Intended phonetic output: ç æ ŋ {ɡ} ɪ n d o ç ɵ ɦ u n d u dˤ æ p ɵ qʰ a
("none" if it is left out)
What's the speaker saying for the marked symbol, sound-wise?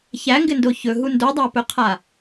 ɡ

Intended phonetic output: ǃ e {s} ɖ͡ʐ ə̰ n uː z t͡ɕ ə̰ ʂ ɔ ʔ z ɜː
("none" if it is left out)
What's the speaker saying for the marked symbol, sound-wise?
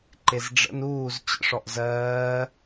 z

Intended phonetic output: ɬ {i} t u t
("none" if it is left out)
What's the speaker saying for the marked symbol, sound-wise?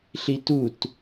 i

